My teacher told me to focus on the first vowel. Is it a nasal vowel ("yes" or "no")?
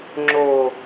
no